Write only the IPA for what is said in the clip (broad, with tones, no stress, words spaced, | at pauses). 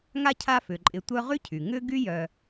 ŋa˦ cʰa˦fʏ˩ ǃʼɪ˨ tʷœ˦ʁy˥cʰy˩ ŋʏ˥ ɡy˥jœ˨